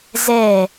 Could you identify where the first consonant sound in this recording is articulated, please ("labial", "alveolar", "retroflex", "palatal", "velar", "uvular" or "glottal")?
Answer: alveolar